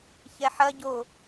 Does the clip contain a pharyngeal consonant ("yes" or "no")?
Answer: yes